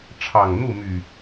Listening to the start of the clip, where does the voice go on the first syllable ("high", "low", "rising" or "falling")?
low